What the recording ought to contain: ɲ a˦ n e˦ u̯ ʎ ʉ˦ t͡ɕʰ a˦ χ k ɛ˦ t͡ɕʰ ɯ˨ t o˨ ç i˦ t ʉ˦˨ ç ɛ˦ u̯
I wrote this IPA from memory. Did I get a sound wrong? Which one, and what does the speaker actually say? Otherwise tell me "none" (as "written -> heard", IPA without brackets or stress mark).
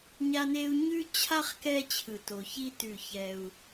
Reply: ʎ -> ɲ